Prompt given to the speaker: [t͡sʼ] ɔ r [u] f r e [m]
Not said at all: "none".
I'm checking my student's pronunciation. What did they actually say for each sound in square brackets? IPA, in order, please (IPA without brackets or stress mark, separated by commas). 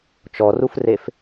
t͡ʃ, u, f